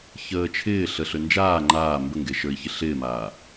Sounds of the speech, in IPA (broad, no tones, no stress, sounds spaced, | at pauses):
ç əː t͡ʃʰ ɪː ɬ ə ɬ ø n d͡ʒ aː ŋ͡ǃ aː m b ə ŋ ɡ e ʃ ə˞ i̯ ç ɪ ɬ ɪː m aː